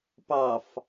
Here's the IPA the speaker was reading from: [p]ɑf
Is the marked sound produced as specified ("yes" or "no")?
yes